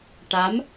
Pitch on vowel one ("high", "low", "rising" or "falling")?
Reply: rising